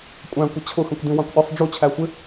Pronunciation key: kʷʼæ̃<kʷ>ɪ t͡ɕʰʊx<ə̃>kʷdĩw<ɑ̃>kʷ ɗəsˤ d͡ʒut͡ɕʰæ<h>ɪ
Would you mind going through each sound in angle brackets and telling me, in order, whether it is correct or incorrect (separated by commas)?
correct, correct, correct, incorrect